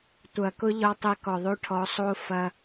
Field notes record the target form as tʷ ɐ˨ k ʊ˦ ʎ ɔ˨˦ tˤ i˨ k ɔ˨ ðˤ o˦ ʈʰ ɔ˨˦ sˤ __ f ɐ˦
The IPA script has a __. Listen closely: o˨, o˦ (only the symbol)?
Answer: o˦